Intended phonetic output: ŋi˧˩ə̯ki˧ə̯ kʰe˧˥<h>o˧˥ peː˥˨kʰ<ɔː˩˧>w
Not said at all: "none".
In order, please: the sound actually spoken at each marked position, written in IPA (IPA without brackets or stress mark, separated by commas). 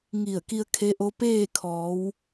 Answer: ʔ, ɔː˩˧